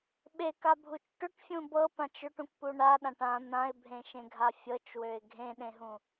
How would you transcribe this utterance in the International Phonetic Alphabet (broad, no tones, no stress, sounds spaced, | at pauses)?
ɓ e k a bʱ u t͡ʃ ʈ ʏ ʈ fʲ ũ b ɤ p ã t͡ʃ ʏ ʈ ũ k p u ɳ a ɗ ã ʈ ã n̪ ã ɪ̯ bʱ ẽ ʃ ẽ ɡʱ a fʲ ɤ t͡ʃ w ø ɪ̯ ɡʱ ẽ ɗ ẽ ɦ ũ